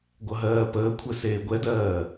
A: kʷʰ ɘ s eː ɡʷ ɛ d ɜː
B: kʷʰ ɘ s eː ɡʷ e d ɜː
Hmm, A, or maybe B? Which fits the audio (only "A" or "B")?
A